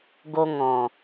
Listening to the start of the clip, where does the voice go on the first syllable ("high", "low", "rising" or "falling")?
high